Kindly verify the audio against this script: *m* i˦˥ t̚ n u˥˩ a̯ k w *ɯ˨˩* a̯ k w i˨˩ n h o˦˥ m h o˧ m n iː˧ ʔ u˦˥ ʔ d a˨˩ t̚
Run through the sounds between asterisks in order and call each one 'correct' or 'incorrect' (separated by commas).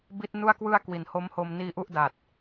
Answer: incorrect, incorrect